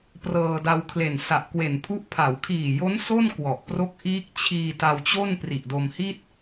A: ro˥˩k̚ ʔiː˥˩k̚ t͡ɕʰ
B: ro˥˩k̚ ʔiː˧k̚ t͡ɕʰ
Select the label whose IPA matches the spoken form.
A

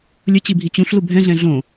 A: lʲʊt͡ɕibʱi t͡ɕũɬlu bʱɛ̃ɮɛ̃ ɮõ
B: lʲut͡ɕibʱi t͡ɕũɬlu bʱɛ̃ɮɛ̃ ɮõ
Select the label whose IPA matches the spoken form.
A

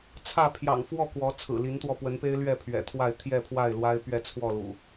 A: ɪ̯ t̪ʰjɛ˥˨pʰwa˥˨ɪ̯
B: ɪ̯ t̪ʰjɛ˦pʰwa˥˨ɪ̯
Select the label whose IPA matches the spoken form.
A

